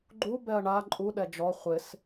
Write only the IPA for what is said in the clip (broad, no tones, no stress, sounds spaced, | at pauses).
ɡ͡ǃ u b ɛ ɐ̯ ɳ a ǃʼ u ɗ ɛ d͡ʒ ɔ χʷ ɪ s